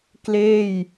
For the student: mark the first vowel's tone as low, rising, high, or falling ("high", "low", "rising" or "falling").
falling